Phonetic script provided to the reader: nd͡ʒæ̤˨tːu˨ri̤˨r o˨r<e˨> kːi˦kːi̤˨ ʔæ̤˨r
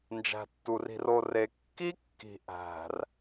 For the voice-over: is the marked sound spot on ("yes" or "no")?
yes